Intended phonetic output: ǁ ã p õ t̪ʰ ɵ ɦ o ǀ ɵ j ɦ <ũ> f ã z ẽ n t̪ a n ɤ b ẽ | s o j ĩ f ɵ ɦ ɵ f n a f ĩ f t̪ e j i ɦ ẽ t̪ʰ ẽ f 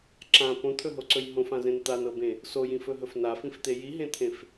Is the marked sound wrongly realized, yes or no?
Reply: yes